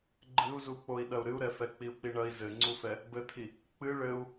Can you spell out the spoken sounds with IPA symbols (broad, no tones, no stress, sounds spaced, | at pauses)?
ɡ͡ǃ ɨ u̯ z u k͡p o i̯ ɗ ɐ u̯ ɾ ɨ u̯ ɾ ɛ f ɛ k͡p i u̯ k͡p i ɳ ɐ i̯ z ɘ ŋ͡ǀ u f ɛ | b ɘ t̪ʰ i | k͡p ɨ ɭ ɘ u̯